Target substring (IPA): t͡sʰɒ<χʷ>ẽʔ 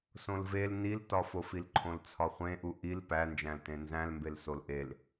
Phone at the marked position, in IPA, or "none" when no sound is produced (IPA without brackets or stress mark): χʷ